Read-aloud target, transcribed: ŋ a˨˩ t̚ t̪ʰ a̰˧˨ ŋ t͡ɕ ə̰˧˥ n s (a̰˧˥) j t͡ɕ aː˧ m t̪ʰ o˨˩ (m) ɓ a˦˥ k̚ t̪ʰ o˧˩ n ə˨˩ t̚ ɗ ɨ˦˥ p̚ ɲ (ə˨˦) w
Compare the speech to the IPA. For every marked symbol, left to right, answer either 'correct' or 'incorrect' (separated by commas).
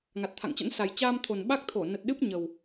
incorrect, incorrect, incorrect